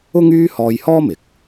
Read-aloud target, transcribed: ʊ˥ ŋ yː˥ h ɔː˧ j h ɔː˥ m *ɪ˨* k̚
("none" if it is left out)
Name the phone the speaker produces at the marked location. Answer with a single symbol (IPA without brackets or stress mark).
ɪ˨